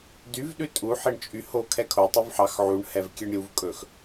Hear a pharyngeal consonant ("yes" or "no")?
yes